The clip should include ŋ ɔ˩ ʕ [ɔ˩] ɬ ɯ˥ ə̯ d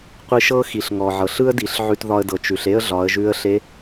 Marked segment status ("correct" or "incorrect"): incorrect